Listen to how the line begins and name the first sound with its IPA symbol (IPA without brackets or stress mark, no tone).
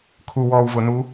kʰ